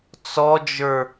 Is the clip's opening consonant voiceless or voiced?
voiceless